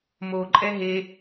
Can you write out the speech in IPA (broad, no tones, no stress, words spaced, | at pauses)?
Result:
moǃʼɛ ɦe